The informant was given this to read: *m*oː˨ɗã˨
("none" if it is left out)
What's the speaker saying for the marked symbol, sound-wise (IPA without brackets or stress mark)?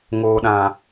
ŋ